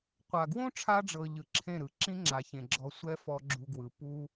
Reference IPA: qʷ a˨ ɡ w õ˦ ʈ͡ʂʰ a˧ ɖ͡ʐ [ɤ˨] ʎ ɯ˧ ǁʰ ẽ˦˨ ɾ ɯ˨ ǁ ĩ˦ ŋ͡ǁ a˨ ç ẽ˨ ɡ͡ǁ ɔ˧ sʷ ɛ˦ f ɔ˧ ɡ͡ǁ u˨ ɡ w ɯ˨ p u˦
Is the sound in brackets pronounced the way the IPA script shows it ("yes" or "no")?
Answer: yes